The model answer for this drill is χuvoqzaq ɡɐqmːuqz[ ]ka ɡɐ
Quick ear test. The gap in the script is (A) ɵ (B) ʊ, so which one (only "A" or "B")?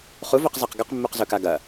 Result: A